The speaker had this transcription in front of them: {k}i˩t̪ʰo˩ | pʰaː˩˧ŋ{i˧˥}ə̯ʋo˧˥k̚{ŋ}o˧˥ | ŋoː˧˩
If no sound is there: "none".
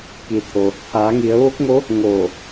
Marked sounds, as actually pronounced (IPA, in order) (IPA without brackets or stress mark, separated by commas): k, i˩˧, ŋ